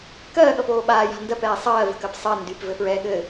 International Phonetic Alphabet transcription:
kɜːɠʌpoː ɓaːja̤ ndɜpɛː sˤɜːvə̤kɜp sˤɜ ndypvɘfɹɛː ɠɘ

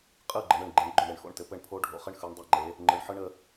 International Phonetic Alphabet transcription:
qʼɯ˥˩ɡ͡ǃɘ˩˧ɳ ɯ˧˩ɳɡ͡ǃe˩˥ɳ ɡ͡ǃʊ˥˩ɳɾe˧ɳxo̰˥˩ɳ tɘ˧pɘ˥˩ɳ pʰo˦˥ɖʱo̰˧χɘ˦˥ɳ xɯ˩˧ɳdˤɛ˧˩ŋ͡ǃe˩˧ | ŋ͡ǃɯ˩˧ɳħɯ˦˥ɳə˧

